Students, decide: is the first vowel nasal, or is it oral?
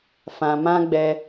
nasal